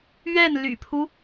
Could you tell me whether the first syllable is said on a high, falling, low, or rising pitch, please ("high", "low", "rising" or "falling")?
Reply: falling